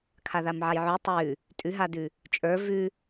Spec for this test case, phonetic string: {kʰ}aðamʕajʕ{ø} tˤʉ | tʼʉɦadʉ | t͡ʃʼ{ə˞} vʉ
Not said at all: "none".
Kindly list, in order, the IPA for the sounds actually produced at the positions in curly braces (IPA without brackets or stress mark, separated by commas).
kʰ, ʉ, ə˞